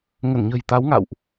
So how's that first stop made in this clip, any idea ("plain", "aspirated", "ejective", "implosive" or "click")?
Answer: plain